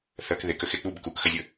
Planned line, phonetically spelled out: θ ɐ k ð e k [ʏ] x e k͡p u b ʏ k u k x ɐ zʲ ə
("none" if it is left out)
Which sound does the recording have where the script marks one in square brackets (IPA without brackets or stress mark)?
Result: ə